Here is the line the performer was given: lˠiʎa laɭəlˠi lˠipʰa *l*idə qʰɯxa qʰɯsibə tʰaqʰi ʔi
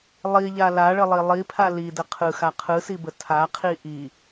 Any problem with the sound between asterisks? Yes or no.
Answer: no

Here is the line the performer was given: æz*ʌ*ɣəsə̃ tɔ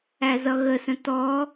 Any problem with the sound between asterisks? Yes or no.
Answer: no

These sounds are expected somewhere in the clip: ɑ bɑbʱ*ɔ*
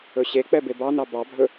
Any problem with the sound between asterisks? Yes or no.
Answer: yes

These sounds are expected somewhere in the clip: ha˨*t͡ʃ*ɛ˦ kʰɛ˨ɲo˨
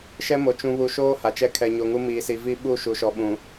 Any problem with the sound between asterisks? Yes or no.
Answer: no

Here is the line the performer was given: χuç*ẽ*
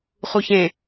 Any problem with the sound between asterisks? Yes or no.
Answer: no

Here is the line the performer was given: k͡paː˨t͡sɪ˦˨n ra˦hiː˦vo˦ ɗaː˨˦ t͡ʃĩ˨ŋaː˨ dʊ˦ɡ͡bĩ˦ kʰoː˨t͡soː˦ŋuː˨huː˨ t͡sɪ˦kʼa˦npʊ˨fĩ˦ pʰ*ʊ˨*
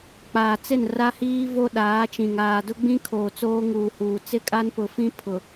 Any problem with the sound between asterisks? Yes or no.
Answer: no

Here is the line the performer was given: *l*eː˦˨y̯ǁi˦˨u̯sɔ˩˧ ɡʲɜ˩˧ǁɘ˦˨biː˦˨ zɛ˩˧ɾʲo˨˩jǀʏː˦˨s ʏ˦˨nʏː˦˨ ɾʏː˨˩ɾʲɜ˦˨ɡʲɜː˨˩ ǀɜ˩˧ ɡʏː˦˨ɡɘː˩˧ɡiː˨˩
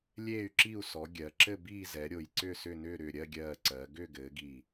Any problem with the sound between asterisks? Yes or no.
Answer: yes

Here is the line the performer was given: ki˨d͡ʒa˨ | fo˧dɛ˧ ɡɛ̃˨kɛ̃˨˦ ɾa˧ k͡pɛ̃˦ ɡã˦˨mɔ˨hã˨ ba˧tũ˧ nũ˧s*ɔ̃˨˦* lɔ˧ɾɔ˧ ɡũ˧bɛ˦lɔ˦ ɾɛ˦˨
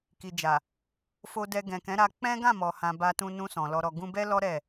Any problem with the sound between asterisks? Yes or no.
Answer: yes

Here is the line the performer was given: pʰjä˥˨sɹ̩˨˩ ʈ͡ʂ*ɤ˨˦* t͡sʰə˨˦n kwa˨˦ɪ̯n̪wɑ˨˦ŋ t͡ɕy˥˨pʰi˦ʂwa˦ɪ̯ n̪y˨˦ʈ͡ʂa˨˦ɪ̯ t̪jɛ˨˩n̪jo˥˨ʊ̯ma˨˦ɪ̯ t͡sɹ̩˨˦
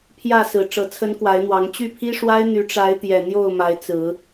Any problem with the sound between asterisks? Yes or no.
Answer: no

